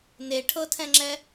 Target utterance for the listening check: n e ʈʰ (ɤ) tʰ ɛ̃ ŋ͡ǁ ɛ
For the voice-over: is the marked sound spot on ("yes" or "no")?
yes